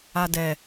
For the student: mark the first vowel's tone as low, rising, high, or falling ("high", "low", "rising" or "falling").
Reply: low